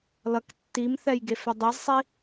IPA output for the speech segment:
l ʌ k tː i m θ ɛ j ɡ e f ɛ dˤ e z sˤ i

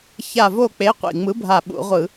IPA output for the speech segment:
ç a˧˩ v o˥˩ k͡p e˨˥ qʷ ḭ˩ ŋ͡m ɯ˨˥ bʱ a˧˩ ɓ ṵ˧˩˧ ʁʷ ɯ˧˩˧

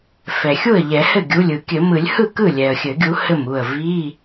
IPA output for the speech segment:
f ɛ˩ xʲ u˥˩ ə̯ ʎ ɛ˨˩˦ h ɘ˥˩ ɡʲ u˩˧˩ lʲ ɯ˨˩˦ kʲ ɘ˨˩˦ m ɯ˨˩˦ lʲ h ɯ˥˩ k ɯ˥˩ lʲ ɛ˩ ə̯ xʲ ɘ˨˩˦ ɡʲ u˨˦ h ɘ˥˩ m u˥˩ ə̯ v i˧˥˧

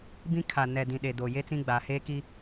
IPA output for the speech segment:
b ĩ˦ kʰ a˨ n ɛ˨ d ĩ˨ ɗ e˨ d oː˨ j e˦ t͡s ĩ˦ ɡ͡b a˨ h e˦ k i˦

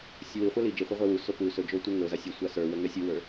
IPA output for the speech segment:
sʲ u w i χʷ a l i d͡ʒ i χʷ i ʁʷ ɛ w u s o p u s ɵ d͡ʒ o tʷ ɛ ŋ ɵ z a sʲ ə sʷ a s ə˞ w ə ŋ ɛ sʲ u w ə˞

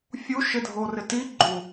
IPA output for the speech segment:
fʲ u ʃ ɪ dʱ o r ɪ t i ɡ͡ǃ u

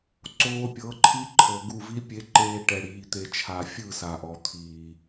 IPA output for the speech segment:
ǀ oː˧ pʲ ɤ˨˦ ǃʰ i˦ ǃʰ ɤ˨ ɡ u˦˨ v i˦ pʲ e˨˦ ǃ eː˧ ʈ ɛ˨ ɽ iː˨ t̪ e˨ t͡ʃʰ a˨ fʲ ɯ˦˨ s a˨ ʔ ɔ˨ t̪ʰ iː˨

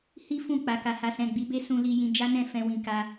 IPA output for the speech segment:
h i˦ f ũ˦˨ k͡p a˨ k a˨ h a˨ s ɛ̃˨ ɡ͡b i˨˦ b e˦ s ũ˧ l i˧ j ĩ˧ d͡ʒ a˦ n ɛ̃˦˨ f ɛ̃˧ w ĩ˨ k a˧

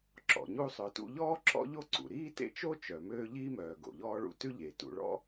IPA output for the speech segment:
ǁ ɔ̰˩ ɲ u˦ sˤ œ˨ t ṵ˦ ʎ ɔː˥ ǁ ɔ̰˥ ʎ o˦ ǀ ṵ˩ ɾ iː˥ t ḛ˥ t͡ʃ o˥ t͡ʃ œ˩ m øː˦ ʎ iː˥ m œː˩ ɡ o̰˩ ʎ ɔː˥ ɭ ṵ˦ t ʉ˥ ʎ e˩ t ṵ˨ ɭ ɔ̰˥

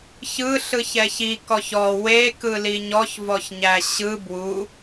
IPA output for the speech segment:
ç ɯ ɬ ɯ ç ɛ ç i k ɔ ç ɔ w e k ɯ l i ɲ ɔ ç v ɔ ç ɲ æ ɕ ɯ b w u

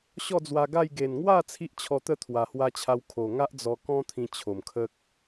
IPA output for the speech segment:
ɕ ɔ˥˧ d͡z w a˧ ɡ a˥˧ j ɡ e˨˩ n ŋ w a˥˧ t͡sʰ i˦ ʔ t͡ɕʰ ɔ˧ t̪ ə˦ t̪ʰ w a˨˩ h w a˧ t͡ɕʰ a˧ w kʰ o˨˩ ŋ a˦ ʔ d͡z ɔ˧ k ɔ̃˦ t̪ʰ ĩ˧ t͡ɕʰ o˨˩ m kʰ ə˦ k̚

